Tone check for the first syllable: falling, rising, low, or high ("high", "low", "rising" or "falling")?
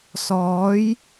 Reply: rising